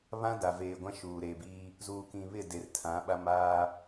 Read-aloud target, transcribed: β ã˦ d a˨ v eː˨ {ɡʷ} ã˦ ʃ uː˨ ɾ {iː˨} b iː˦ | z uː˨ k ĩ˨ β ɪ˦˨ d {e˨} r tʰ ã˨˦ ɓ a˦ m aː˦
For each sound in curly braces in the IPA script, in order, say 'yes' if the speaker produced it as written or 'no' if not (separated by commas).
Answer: yes, no, yes